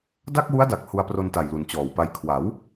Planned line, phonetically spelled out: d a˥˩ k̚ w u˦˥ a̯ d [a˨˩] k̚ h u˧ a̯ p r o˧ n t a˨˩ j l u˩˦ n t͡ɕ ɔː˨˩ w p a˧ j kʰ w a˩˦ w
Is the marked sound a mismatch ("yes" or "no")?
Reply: no